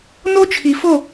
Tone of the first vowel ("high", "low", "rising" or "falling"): high